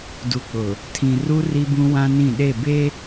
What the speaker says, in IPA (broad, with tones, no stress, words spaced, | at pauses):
du˨k͡pʊ˨ | tʰĩ˨ru˦ ri˦bũ˦wã˦nĩ˦˨ ɗe˦˨be˦